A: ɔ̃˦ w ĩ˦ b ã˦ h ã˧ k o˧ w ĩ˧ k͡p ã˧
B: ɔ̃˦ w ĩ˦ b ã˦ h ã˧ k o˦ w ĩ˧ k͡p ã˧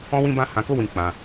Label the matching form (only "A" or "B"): B